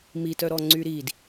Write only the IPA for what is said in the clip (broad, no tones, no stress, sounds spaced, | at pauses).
m i t œ ɾ ɔ ŋ͡ǀ y ɾ i d